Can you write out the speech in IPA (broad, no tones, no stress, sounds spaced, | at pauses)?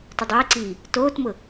t ʊ dˤ ɪː ǀ iː | t oː t m ʊ